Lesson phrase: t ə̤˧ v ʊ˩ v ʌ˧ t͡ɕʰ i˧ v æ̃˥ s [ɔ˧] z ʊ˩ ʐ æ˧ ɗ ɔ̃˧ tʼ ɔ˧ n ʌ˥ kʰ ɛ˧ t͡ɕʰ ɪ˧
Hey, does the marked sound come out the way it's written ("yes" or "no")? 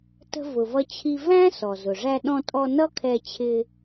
no